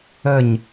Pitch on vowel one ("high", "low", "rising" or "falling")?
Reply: falling